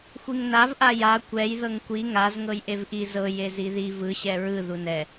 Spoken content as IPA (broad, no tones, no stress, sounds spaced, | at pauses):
xʷ i ŋ n a v ʔ a j a kʷ ɛ j ð ɤ ŋ kʷ i ŋ a z ŋ ɤ j ʔ e v ʔ i z ɤ j e z i ð i v ɯ ɕ ɛ ɹ ɯ ð u n ɛ